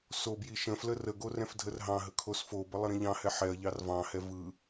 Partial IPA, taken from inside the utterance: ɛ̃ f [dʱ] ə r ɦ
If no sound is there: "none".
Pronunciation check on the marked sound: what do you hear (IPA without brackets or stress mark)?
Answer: dʱ